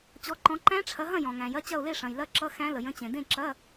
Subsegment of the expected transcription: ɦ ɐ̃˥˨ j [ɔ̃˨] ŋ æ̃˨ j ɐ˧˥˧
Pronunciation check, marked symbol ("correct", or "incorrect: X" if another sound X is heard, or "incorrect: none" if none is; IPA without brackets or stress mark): correct